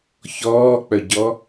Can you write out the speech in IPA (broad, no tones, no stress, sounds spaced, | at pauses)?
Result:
ç ɔː k͡p œ ɟ ɔ